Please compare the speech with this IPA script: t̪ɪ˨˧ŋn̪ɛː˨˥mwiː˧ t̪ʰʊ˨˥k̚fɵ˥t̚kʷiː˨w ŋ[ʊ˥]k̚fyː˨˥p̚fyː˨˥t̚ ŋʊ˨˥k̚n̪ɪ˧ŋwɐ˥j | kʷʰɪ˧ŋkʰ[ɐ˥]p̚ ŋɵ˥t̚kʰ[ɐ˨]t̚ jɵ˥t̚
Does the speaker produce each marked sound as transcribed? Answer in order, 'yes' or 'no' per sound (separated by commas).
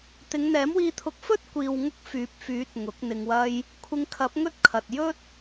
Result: yes, no, yes